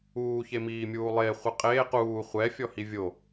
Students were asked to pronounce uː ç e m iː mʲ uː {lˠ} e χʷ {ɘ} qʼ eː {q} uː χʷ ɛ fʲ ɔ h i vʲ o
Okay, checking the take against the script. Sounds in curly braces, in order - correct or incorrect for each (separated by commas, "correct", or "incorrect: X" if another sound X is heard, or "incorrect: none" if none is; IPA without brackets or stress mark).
correct, correct, correct